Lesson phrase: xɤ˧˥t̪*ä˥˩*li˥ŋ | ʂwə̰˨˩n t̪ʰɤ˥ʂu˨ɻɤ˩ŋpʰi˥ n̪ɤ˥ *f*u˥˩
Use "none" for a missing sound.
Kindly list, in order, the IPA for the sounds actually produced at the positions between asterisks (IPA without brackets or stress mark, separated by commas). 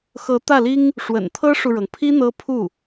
ä˥˩, pʰ